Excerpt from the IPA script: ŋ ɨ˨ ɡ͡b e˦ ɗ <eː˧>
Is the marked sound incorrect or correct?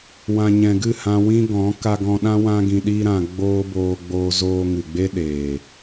incorrect